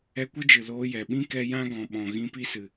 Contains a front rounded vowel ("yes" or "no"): no